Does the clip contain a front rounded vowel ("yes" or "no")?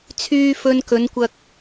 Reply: yes